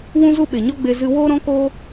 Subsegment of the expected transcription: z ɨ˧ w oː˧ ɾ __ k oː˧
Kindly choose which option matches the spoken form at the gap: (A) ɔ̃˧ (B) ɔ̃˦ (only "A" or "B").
A